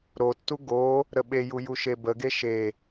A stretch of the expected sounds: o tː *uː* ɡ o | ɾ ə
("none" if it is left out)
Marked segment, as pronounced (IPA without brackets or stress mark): u